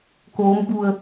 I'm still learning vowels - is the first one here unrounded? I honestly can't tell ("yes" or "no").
no